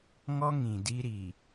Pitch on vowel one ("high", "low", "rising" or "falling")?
high